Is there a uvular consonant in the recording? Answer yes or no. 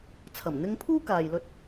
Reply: no